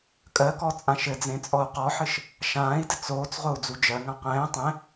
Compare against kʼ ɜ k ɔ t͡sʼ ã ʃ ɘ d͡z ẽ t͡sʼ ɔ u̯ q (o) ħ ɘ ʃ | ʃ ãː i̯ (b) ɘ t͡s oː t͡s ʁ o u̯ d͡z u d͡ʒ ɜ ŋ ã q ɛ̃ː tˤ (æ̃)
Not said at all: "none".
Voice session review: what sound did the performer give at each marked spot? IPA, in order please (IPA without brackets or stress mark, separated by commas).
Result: ɔ, d, ɛ̃